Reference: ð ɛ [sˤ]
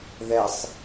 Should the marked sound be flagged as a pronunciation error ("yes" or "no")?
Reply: no